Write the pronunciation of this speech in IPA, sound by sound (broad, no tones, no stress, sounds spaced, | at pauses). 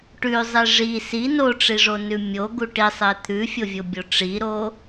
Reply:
ʈ ʉ zˤ i ʐ i s i n o ʈ͡ʂ i ʐ o n ʉ mʲ o ɡ u ʈ i sˤ e t̪ʰ ʉ fʲ o vʲ o bʲ o ʈ͡ʂ i ɾ o